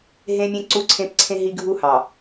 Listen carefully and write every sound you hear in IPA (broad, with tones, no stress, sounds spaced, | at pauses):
ɦ ẽ˦ mʲ ẽ˦ ǀ u˦ ǀʰ ẽ˦ p ǀʰ ẽ˦ ɦ i˦ ɡʱ u˦ h ɑ˨